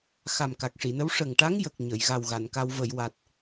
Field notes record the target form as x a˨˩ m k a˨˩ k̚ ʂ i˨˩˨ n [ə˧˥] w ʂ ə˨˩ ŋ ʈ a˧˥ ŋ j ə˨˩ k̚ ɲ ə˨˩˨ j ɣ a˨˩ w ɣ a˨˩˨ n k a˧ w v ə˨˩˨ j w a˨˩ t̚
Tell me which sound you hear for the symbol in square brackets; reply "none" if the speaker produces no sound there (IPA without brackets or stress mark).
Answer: ə˧˥